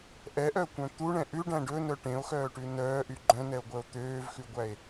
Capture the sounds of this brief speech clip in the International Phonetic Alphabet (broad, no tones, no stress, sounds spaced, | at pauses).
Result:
ʔ ɛ ʔ œ kʷ œ̃ t̪ u ɳ ɛ̃ ʔ ʉ ɖ æ̃ ɖ ɵ n œ ʈ ẽ o̯ x œː ʈ ʉ n œː ʔ y ɡ͡ǃ œ̃ n ɛ o̯ ɡʷ œ o̯ t̪ øː v x ʉ ɡʷ æ e̯